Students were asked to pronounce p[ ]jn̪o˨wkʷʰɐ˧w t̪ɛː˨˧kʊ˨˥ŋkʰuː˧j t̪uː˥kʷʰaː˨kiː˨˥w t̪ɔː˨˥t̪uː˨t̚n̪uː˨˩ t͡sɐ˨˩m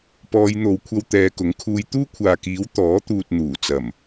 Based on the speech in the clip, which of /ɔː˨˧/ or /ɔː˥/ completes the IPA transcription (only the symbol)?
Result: ɔː˨˧